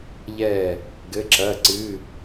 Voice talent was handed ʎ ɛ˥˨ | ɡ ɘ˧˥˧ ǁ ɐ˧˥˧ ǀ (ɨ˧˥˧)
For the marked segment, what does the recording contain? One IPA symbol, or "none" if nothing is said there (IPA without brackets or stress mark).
ɨ˧˥˧